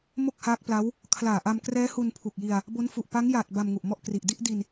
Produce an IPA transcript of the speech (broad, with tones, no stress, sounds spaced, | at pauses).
m o˥˩ k̚ h aː˦˥ k̚ p l a˦˥ w | kʰ l aː˨˩ ʔ a˧ m k r ɛː˦˥ h u˧ n pʰ u˨˩ k̚ j i˧ a̯ | b o˦˥ n f u˨˩ ʔ p a˦˥ ŋ j aː˨˩ t̚ b a˧ m ŋ u˨˩ ʔ m ɔ˥˩ ʔ k r i˨˩ ʔ d i˥˩ ʔ d i˧ n